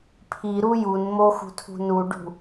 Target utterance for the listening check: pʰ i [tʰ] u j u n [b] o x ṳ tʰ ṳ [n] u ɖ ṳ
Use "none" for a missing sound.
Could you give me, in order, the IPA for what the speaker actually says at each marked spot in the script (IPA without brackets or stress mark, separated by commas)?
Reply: ɾ, m, n